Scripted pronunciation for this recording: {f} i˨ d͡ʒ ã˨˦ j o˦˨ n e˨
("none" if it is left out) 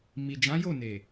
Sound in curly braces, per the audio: m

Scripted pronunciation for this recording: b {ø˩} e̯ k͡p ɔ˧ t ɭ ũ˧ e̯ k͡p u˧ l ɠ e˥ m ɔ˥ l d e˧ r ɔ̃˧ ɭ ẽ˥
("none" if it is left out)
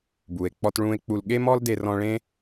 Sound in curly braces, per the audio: u˩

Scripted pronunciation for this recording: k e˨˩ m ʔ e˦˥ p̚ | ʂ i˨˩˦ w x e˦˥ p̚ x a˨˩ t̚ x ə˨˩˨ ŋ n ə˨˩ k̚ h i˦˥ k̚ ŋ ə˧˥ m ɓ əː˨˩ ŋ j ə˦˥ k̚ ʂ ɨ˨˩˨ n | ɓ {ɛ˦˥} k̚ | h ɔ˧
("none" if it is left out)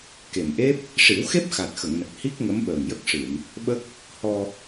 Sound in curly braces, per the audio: ə˦˥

